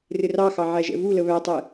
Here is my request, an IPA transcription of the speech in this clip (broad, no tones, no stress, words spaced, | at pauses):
rɪrɑxɑ ʕæʒɛ̰vulə βætˤɛ